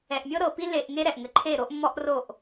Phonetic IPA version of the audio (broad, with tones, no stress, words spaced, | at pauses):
ɛ˨ʔmʲɤ˦ɾɤ˨pi˦ le˨ʔ ŋe˦ɾɛ˨ʔ ŋɘ˨ǃʰe˦˨ɾo˦ʔ mːɔ˦ʔro˦˨ʔ